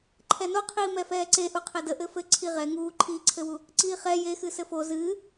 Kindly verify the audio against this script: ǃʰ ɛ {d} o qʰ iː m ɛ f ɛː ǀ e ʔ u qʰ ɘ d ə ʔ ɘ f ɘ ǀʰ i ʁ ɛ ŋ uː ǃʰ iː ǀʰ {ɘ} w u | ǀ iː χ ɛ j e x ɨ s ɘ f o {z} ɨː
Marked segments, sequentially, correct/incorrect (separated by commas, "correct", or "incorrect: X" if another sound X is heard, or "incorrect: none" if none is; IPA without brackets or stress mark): incorrect: n, correct, correct